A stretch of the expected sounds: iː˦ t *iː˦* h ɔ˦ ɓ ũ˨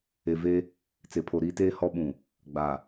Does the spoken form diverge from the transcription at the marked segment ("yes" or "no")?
yes